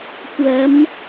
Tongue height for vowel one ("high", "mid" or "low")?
low